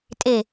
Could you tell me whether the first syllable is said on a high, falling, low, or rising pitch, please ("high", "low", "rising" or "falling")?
falling